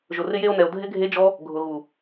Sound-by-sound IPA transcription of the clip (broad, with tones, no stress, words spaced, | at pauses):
ʒʊ˨rɪ˧je˧o̯nɛ˨o̯ dʱɪ˦ɡʱe˦d͡ʒɔ˦ | ɡʱʊ˨ɣu˨